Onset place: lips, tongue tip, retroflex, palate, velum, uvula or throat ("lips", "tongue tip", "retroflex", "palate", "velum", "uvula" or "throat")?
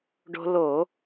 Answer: retroflex